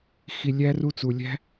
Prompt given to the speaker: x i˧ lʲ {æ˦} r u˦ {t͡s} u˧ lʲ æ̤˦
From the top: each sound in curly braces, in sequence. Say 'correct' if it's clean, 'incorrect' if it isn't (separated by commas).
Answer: correct, correct